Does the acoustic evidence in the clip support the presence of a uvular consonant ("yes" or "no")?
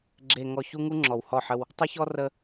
no